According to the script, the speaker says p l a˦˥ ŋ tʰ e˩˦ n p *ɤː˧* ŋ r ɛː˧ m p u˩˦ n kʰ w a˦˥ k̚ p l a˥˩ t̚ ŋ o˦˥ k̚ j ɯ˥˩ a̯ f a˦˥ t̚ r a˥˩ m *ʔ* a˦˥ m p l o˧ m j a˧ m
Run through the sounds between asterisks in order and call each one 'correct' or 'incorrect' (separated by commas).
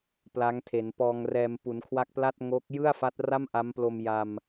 incorrect, correct